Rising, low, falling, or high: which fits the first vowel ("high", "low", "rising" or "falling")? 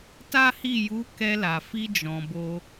high